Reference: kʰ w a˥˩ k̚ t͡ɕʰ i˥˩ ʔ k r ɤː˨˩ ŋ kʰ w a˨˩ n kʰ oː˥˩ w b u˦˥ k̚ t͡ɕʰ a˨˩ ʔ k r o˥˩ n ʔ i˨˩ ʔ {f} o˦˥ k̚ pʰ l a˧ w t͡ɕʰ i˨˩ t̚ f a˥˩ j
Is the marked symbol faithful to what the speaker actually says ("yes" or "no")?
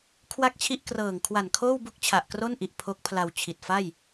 no